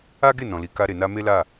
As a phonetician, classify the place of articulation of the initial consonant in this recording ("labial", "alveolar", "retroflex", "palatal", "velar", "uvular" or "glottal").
velar